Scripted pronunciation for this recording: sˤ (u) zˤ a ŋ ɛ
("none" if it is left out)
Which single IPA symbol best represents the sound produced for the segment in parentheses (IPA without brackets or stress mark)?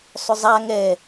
ʏ